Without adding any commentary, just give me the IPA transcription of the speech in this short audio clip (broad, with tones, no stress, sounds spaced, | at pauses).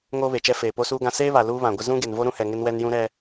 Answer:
ŋ oː˦ β e˨ t͡ʃ ɛ˦ f eː˨ p o˦ s uː˦ ɡ ã˦ s eː˦ β a˨ l uː˦ β ã˨ ɡʷ ɪ˦ z ũ˦ ɡ e˨ n v o˦ ɾ ũ˦ h ɛ˨ ŋ ɪ˦ n w ɛ˦ n j ũ˦ ɾ ɛ˦